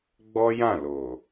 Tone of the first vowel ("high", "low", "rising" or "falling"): high